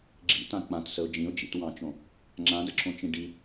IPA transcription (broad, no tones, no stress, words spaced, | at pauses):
ɡ͡ǁḭtã k͡pãtsəʊ̯ d͡ʒĩʊ̯d͡ʒḭtwɑ̃t͡ʃõ | ŋ͡ǁãdəǁʰõt͡ʃĩ ɖi